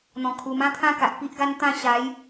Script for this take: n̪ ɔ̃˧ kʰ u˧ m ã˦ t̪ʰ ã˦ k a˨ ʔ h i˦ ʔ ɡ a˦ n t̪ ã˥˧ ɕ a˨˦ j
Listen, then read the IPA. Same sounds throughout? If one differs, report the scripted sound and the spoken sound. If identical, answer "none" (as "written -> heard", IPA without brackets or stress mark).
h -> p